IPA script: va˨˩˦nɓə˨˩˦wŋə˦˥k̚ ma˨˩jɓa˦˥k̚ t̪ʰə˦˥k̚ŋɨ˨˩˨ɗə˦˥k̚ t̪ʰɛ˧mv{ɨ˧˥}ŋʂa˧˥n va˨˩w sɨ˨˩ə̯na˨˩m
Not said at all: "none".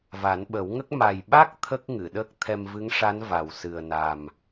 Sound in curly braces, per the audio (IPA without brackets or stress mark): ɨ˧˥